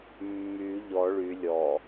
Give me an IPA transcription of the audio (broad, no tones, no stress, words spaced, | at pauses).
mːy ʎɔ ɭy lʲɔ